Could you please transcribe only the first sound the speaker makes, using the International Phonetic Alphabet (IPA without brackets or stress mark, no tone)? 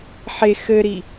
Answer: ħ